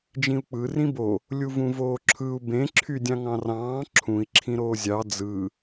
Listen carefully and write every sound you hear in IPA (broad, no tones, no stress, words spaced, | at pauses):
d͡ʒĩu̯k͡pɯ rĩbo | lʲuvũvoːǁʰɯu̯ bẽ ǁʰydʲɑ̃ŋɑ̃rɑ̃ː ǁʰũi̯ ǁʰĩɾoːzʲɑ d͡zɯ